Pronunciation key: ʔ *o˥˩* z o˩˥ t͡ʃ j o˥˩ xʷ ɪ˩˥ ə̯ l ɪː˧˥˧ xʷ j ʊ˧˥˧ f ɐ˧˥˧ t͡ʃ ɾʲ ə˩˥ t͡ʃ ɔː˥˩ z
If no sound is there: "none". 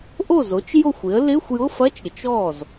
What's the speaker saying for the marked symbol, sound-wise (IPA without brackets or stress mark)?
o˥˩